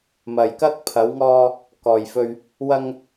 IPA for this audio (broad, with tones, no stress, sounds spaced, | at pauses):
m ɐ˧ j k ɐ˥ k̚ pʰ ɐ˨˧ w ŋ ɔː˧ | k ɔː˨ j f ɵ˧ ɥ | w ɐ˧ ŋ